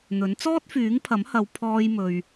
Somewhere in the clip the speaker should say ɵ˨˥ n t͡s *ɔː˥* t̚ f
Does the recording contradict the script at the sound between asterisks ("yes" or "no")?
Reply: no